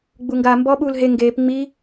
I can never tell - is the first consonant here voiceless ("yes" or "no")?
no